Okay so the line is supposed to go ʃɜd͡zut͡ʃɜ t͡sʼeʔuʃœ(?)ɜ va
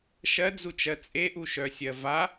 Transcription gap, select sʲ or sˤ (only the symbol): sʲ